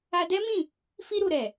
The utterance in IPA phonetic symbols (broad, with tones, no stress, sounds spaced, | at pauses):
a˧ d ɛ˦ m ĩ˦˨ | f i˧ ɾ u˨ ɾ ɛ˨